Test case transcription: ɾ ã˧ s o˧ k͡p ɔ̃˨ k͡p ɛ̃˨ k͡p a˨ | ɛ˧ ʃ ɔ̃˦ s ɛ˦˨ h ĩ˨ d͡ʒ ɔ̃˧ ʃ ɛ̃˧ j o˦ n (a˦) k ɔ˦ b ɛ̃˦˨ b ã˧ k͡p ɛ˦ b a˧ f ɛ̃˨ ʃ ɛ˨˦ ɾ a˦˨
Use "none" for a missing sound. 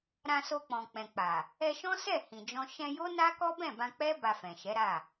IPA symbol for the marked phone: a˦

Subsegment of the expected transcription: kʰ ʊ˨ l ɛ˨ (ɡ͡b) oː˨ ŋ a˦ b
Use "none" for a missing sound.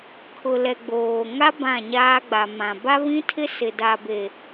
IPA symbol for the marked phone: ɡ͡b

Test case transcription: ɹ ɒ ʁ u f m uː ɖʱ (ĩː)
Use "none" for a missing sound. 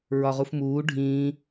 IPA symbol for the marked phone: ĩː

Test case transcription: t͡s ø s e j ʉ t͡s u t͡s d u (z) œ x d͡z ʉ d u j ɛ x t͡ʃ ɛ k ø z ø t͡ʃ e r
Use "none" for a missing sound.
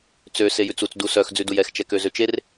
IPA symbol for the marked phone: s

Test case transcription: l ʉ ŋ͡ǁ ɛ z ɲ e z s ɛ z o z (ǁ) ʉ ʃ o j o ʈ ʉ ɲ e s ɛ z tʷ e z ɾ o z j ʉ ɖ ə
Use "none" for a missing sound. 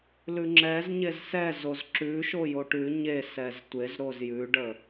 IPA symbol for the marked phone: ǁ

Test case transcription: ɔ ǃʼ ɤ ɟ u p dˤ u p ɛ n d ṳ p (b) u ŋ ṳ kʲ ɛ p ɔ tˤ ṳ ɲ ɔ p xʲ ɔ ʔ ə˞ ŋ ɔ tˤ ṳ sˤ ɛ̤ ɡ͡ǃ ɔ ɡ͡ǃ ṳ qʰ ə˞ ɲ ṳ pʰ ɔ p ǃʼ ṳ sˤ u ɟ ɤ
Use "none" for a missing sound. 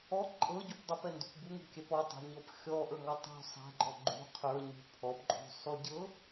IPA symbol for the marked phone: b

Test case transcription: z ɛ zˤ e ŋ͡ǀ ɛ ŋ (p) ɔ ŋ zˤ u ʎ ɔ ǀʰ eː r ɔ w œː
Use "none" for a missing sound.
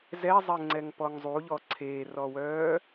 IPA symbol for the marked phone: p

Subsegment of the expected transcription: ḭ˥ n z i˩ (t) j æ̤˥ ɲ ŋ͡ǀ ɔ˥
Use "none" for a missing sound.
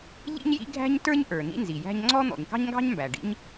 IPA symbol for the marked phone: none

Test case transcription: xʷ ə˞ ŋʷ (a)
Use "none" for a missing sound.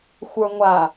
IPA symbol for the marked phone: a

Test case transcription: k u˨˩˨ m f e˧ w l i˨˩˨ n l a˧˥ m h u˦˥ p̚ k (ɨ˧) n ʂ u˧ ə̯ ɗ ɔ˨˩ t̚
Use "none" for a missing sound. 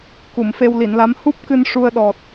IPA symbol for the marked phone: ɨ˧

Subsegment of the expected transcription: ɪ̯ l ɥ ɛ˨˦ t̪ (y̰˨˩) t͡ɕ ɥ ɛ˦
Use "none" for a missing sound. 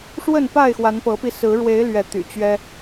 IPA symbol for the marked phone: y̰˨˩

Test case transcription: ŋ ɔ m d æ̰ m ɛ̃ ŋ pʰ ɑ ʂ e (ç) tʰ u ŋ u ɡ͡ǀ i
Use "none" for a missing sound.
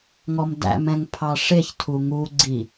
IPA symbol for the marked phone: ç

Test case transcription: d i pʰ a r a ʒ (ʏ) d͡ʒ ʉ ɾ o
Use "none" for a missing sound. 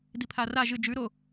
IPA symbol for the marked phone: ɨ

